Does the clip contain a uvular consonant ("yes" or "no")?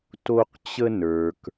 yes